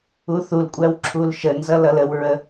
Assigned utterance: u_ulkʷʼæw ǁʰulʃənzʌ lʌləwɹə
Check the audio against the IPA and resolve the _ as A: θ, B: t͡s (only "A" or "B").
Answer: A